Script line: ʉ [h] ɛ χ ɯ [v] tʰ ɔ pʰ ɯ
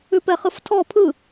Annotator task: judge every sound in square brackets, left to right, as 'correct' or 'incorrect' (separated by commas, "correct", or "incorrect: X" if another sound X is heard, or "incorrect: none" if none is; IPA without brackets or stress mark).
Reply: incorrect: p, incorrect: f